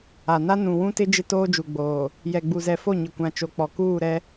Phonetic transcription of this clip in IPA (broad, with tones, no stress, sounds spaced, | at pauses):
a˨ n a˦ n ũ˨ w ũ˦ t ɪ˦ d͡ʒ ɪ˦ t oː˦ d͡ʒ u˨ ɡ͡b oː˨ | j ɛ˨ ɡ͡b u˨ z ɛ˨ f o˦˨ ɲ ɪ˨ kʷ ã˨ t͡ʃ o˨ k͡p ɔ˨ k uː˦˨ ɾ ɛ˦